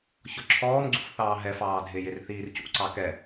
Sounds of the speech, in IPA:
ç ɔ ǁʰ ɔː m ɡ͡ǀ ṵ f θ ɑː ɦ ɛ f ɑː dʱ ɪ j ɪ r θ iː r c ṵ ǀ ɑ k ɛ

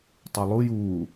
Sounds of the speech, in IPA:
tˤ u lˠ u j uː

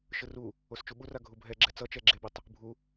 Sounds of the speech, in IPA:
ʃ ɯ r u | o s t͡ʃ u ɓ u r a ɡʱ u bʱ ɛ ɡ͡ǁ ɛ t͡s ʌ t͡ʃ ɛ ɡ͡ǁ e b i tˤ | bʱ u

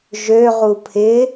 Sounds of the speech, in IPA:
ʒ ø ʁ u pʰ ɪ

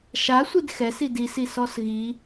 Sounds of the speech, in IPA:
ʃ a sʷ i d x ɛ s i d i s i s ɔ s ɣ i

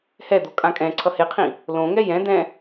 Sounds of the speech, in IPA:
h ɛ d̪ o kʼ ã kʼ ɛ̃ ǀʰ ʌ h e qʰ ĩ | l õ ŋ ɛ j ɛ̃ d̪ ɛ̃

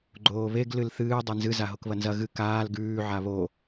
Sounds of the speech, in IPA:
ɡ͡ǃ oː β e ɡ l ɨ l θ ɨː dˤ e n z ɨ z a ɦ o k β ɐ n z ɐ ɣ ɨ k aː l ɡ ʉː ʕ a β o

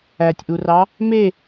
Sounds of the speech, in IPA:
æ tʲ ʔ u r ɑ | m e

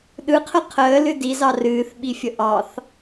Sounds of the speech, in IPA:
ɗ ɯ qʰ ə qʰ əː l ɨ d i z ɑ r ɨː θ ɓ i fʲ ə ʔ ɑ θ

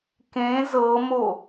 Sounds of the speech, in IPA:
k ẽ z ɤ m o

